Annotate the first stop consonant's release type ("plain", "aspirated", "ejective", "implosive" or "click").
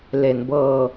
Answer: plain